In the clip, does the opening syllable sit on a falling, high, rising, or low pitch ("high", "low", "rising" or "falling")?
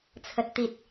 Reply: low